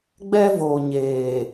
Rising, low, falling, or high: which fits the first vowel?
high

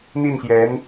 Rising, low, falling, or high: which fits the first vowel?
falling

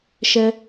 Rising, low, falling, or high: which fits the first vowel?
high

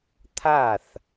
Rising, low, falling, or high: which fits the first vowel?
falling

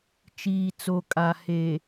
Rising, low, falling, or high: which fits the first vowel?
low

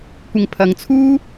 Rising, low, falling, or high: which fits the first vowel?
low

